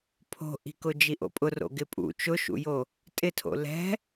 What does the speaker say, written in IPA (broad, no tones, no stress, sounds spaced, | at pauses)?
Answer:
pʰ o̤ ʔ i̤ k ʊ d͡ʒ i ʔ o̰ pʼ ʊ r o̰ ɡ ɪ pʼ ṵ t͡ʃ ʊ ʃ ṵ j o | tʼ ɪ tʰ o̰ l ɛ̤